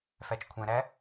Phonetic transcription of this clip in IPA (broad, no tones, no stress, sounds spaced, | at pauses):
f æ t͡ʃ kʷʰ ɛ̃ ɾ æ